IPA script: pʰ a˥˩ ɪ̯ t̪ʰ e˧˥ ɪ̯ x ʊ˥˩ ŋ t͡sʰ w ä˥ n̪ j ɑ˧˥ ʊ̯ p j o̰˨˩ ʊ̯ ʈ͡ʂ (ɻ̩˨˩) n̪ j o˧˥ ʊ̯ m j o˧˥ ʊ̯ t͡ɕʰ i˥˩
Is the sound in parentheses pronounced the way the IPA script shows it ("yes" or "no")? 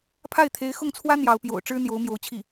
no